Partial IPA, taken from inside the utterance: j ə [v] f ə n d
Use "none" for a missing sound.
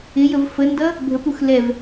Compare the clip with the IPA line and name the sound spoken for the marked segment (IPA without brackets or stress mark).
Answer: v